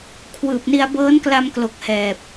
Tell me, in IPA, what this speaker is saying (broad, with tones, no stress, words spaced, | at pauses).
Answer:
kʰwɯː˨˩p̚ni˧a̯ bɤː˦˥nkla˧mklo˨˩k̚ hɛː˨˩p̚